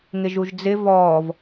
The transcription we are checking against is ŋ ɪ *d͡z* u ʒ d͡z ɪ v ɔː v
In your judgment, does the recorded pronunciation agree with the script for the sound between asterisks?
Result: no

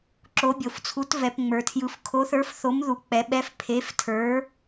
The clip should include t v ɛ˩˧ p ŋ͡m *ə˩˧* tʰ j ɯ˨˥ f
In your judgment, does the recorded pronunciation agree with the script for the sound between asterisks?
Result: no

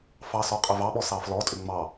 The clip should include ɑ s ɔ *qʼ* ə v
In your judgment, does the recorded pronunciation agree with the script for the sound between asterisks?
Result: yes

